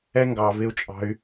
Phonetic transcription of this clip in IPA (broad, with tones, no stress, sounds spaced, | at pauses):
ɛ˦ ŋ ɡ ɑ˧ v ɪ˦ u̯ t͡ʃʼ ɑ̤˦ y̯